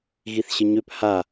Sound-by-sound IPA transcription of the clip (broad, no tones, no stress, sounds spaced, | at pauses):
ɣ i θ ɕ ə ɲ ø p h a